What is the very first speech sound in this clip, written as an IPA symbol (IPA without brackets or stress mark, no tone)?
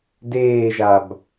d